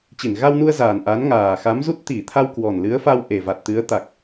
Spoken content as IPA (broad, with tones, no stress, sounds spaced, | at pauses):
t͡ɕ i˧˩ n ɣ a˧ w n u˧ ə̯ z aː˨˩ n ʔ aː˨˦ n ŋ aː˨˩ x a˨˦ m z u˦˥ t̚ t̪ i˧˩ t̪ʰ a˧ w k w ɔ˨˩ n l ɨ˨˦ ə̯ f a˧ w ʔ e˨˩ v a˨˩ t̚ t̪ ɨ˨˦ ə̯ t̪ a˨˩ k̚